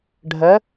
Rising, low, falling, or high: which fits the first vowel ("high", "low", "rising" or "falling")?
rising